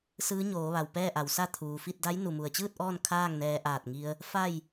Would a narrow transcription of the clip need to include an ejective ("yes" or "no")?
no